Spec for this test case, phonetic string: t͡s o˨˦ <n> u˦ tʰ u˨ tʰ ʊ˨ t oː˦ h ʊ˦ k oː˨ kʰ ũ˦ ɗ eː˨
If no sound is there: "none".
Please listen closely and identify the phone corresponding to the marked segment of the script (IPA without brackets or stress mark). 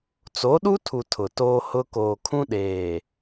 ɗ